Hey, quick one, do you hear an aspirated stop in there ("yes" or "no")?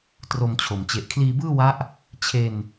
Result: yes